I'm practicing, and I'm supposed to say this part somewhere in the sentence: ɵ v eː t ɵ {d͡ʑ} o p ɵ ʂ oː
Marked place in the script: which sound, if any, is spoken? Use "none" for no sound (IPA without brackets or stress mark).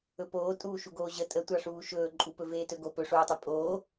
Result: ɡ